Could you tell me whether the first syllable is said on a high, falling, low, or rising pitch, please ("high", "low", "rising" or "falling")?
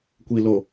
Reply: low